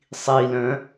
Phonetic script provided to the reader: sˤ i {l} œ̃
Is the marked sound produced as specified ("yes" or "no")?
yes